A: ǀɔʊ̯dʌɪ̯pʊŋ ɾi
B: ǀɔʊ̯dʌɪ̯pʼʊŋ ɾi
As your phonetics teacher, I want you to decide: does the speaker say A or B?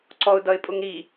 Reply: B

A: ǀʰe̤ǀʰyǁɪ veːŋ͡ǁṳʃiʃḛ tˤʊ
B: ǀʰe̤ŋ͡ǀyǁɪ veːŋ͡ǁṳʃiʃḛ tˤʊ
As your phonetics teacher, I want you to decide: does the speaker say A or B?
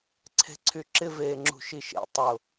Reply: A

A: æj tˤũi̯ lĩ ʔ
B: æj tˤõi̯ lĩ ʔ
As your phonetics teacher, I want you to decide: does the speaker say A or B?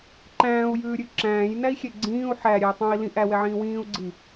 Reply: B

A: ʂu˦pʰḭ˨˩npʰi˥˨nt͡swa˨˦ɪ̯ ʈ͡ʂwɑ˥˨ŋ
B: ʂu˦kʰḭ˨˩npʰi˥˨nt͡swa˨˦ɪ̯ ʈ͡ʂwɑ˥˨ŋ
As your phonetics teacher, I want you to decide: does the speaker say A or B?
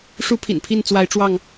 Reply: A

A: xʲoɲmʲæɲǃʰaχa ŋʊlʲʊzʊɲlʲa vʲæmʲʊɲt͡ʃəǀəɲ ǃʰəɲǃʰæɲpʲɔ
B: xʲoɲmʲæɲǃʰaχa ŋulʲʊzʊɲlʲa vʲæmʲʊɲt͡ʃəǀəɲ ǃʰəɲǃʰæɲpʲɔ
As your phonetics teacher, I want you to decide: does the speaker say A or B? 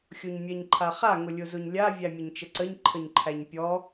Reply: A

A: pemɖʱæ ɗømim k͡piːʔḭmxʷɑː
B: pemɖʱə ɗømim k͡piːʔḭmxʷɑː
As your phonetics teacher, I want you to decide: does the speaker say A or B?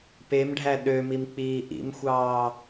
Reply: A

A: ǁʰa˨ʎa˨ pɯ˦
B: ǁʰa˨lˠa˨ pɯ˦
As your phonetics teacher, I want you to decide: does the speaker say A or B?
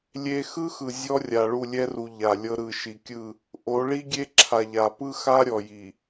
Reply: A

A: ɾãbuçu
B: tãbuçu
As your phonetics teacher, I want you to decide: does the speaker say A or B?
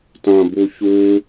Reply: B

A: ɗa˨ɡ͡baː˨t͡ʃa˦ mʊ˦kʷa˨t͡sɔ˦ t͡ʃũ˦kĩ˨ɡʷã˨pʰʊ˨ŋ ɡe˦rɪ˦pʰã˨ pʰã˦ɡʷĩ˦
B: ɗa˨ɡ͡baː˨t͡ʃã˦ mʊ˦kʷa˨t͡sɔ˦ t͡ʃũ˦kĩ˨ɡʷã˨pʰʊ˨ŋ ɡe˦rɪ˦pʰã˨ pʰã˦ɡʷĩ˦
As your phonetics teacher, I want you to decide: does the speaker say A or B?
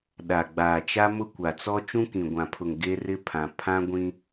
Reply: A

